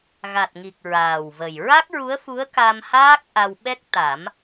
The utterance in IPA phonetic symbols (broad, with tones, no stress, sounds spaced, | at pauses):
ɣ a˨˩ t̚ ŋ i˨˩ k̚ ɹ aː˨˩ w v ə˨˩ j ɹ a˦˥ k̚ ɹ u˧˥ ə̯ f u˧˥ ə̯ k a˧ m h aː˦˥ k̚ ʔ a˧ w ɓ ɛ˦˥ k̚ t̪ a˨˩˦ m